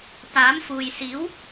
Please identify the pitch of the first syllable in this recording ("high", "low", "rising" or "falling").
rising